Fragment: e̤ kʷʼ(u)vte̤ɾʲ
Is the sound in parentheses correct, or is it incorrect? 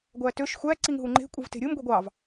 incorrect